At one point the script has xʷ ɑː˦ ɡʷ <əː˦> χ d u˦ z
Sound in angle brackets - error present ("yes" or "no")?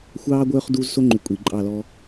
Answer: yes